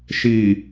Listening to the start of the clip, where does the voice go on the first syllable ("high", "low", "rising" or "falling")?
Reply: low